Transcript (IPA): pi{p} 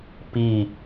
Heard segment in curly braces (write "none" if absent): none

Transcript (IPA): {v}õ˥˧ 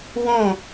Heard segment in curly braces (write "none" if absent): w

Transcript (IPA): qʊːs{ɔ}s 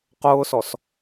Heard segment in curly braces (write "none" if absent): ɔ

